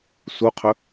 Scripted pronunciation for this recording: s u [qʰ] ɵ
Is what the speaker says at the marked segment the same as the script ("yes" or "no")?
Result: yes